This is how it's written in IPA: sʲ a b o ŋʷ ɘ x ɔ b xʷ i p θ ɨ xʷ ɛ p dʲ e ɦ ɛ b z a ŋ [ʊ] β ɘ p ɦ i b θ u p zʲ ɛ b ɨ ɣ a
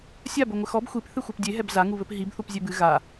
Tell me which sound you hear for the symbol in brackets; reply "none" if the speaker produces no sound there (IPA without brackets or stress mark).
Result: u